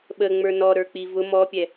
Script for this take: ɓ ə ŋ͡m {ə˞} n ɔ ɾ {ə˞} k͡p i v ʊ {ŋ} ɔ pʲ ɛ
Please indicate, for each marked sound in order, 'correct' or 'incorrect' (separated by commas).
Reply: correct, correct, incorrect